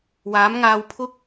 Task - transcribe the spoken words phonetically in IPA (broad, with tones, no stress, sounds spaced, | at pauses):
w aː˨˥ m ŋ aː˧ w pʰ ʊ˥ k̚